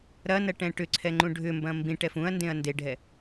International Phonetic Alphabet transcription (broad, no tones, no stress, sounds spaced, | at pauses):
ɾ ɐ n ɐ ʈ ɛ̃ ʈ ʏ ǀʰ ɛ ŋ͡ǃ ũ ɖʱ ʏ m b ɐ̃ m b ĩ ʈ ɛ f ũ ɐ̯ n d ẽ ɐ̯ n d e ɖʱ ɛ